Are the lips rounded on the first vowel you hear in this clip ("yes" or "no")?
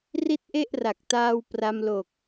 no